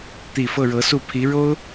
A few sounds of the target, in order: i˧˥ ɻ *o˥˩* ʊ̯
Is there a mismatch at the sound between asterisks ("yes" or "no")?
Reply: yes